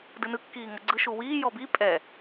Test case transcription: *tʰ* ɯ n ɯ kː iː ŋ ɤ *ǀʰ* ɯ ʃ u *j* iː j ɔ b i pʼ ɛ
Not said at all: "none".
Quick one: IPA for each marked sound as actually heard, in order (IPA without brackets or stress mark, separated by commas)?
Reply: d, ɡ͡ǀ, w